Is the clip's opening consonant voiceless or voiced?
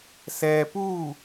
voiceless